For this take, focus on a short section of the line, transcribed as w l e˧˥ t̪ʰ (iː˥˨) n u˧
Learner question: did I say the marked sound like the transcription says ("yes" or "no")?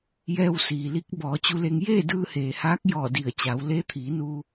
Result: no